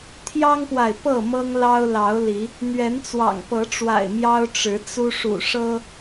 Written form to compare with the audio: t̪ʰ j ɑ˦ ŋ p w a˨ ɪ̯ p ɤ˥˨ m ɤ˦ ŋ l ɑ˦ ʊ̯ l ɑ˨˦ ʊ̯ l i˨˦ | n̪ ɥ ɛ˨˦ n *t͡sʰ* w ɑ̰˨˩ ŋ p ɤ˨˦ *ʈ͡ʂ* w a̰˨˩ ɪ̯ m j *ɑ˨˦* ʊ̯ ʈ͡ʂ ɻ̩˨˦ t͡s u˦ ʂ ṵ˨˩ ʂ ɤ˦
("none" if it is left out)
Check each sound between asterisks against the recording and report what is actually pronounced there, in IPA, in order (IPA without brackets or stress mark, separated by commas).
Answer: t͡s, ʈ͡ʂ, ɑ˦